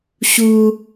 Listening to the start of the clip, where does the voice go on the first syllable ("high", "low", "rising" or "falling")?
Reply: high